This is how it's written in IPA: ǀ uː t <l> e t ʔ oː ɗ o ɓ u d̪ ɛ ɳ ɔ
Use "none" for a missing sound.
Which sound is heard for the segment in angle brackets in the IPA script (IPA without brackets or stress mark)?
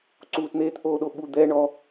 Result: n̪